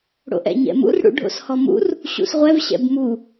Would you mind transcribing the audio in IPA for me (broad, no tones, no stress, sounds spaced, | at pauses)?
ɽ o̰ ʔ ɛ̰ ɲ ɛ̰ m ṵ r ɽ ṵ ɖʱ o̰ s h ɔ m ṵ r | ɕ ṵ s ʁʷ ɛ v ɕ ɛ̰ b m u